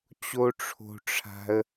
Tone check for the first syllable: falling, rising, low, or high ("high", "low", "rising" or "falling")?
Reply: high